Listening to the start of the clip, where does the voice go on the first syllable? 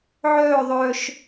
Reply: falling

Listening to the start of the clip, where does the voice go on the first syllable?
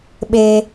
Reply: high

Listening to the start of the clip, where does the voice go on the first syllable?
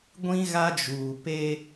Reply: high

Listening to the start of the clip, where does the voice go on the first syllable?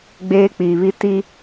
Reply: high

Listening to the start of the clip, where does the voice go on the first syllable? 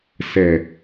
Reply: low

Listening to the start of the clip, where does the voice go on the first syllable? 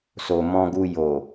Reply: low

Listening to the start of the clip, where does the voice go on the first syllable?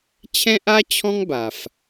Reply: high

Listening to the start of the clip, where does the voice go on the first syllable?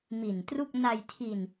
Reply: low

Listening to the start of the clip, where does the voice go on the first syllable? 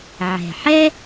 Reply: low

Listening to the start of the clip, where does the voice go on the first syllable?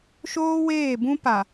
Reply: high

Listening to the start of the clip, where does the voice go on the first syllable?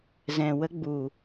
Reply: low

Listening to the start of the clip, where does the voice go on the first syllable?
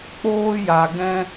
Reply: high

